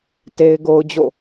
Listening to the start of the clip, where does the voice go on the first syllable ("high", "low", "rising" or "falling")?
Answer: high